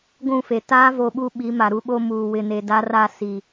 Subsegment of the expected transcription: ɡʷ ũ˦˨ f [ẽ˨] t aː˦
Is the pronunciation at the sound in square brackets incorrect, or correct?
incorrect